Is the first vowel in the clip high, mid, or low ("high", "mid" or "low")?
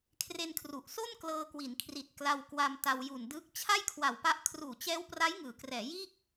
mid